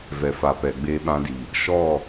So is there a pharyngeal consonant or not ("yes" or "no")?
no